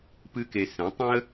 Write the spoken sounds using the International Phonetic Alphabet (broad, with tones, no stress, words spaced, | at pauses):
pɨ˥ke˧ sɛ̃˩˥tˤĩ˥ə̯